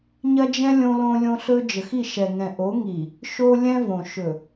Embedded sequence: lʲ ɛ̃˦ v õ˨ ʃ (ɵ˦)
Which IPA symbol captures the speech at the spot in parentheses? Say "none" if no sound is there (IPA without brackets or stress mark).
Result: ɵ˨